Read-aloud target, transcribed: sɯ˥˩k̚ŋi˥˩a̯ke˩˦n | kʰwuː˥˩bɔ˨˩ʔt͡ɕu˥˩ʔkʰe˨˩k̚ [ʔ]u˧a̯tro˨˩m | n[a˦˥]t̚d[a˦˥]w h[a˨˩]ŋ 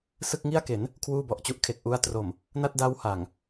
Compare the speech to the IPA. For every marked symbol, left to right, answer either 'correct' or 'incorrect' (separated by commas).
correct, incorrect, correct, correct